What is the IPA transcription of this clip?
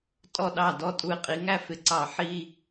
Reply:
tʼ ɔ˥˩ ɗ ɑ˥˩ d ɔ˥˧ tʼ u˧˩ ɪ̯ qʼ i˨˦ ŋ æ˥˧ f ɪ˨˦ ǀ ɑ˧˩ ħ i˥˧

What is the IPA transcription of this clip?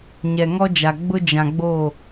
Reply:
ɲ ɛ˨ ŋ ɔ˦ d͡ʒ a˨ ɡ͡b ʊ˦ d͡ʒ ã˨ ɡ͡b oː˦˨

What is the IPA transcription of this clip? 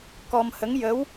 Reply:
k ɔ˧ m h ə˧˥ ŋ j ə˧˥ w

